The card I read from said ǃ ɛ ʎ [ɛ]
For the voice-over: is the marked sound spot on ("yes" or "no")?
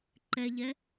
yes